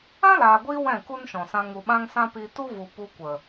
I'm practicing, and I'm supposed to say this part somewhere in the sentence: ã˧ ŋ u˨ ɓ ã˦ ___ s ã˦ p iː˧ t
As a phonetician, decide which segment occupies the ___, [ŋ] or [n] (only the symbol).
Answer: ŋ